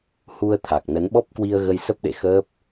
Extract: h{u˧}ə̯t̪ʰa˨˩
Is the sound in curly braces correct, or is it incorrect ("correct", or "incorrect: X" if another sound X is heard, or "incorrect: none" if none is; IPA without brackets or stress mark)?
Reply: correct